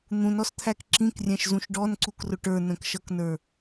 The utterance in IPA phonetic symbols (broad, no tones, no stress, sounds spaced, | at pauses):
n̪ ũ n ɔ s t̪ʰ æ k ǁ ĩ k rʲ æ̃ ʃ z ũ ʃ ɖ ɔ n ǀ u k r ʊ ʈ ə˞ n ə̃ k ʃ ʌ k n ə˞